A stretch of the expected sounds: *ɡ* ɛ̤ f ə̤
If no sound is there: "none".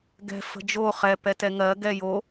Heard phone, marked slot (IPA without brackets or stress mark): ɡ